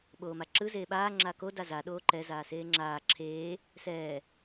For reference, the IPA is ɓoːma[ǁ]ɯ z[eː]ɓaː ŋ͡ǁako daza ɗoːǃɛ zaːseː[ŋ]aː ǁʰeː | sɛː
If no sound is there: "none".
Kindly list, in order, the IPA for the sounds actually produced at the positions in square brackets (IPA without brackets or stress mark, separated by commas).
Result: ǁ, eː, ŋ͡ǁ